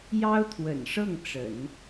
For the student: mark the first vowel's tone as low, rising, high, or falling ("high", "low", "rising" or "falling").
high